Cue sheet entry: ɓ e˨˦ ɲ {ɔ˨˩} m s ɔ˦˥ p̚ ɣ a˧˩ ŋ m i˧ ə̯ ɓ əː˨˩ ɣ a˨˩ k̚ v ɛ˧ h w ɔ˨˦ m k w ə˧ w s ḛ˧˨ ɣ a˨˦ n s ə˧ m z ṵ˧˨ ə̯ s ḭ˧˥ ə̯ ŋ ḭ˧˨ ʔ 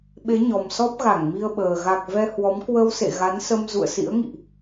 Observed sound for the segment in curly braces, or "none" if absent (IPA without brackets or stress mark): ɔ˨˩